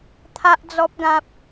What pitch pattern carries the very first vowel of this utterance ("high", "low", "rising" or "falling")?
high